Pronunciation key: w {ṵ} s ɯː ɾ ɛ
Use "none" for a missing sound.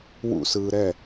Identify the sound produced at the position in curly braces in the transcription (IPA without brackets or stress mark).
ṵ